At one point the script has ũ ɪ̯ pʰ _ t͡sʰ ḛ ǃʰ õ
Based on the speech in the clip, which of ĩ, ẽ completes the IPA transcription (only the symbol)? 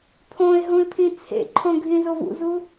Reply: ĩ